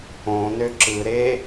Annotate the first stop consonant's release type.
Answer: click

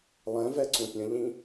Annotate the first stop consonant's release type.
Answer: click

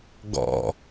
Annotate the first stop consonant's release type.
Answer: plain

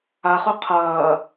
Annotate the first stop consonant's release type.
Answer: aspirated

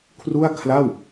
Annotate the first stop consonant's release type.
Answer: aspirated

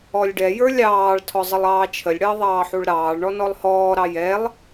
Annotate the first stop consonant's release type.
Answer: plain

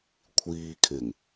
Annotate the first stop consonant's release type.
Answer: aspirated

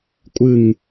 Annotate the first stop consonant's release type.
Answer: ejective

